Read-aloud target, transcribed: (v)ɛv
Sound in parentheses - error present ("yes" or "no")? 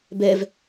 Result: yes